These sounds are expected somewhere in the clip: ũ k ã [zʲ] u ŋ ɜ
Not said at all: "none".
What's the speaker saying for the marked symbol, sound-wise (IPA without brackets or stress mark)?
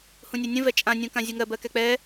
zʲ